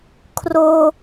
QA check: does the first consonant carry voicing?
no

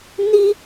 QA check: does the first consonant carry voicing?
yes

